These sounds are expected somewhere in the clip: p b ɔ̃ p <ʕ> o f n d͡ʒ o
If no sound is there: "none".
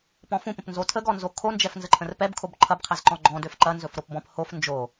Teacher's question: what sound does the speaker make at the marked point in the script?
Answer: h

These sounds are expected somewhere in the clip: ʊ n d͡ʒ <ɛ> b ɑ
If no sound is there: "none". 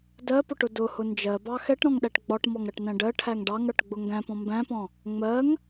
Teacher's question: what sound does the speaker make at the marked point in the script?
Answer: ɜ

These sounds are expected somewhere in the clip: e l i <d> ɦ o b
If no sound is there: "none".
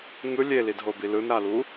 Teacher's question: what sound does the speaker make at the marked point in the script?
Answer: d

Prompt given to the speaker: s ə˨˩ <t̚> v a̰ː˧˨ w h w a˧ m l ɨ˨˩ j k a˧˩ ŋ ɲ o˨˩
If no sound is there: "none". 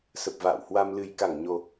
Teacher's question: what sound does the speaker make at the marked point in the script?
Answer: p̚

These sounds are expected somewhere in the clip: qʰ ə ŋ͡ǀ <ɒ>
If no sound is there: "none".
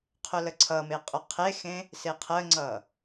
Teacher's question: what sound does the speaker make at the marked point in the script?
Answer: ʌ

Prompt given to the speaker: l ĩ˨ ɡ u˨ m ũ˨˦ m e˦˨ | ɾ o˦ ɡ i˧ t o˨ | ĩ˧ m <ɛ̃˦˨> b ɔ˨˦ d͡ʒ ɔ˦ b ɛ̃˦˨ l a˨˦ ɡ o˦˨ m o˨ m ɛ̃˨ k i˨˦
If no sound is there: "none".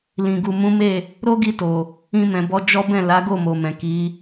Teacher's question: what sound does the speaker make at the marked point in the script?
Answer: ɛ̃˨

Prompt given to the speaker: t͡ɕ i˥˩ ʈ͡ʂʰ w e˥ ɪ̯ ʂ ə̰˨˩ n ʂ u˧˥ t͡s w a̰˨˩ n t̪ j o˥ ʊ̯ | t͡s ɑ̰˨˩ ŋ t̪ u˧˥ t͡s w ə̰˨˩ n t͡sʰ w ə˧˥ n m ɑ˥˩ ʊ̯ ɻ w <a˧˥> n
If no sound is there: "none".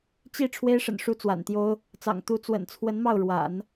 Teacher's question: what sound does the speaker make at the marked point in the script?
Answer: a̰˨˩˦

